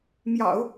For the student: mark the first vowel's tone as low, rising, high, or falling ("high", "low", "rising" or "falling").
low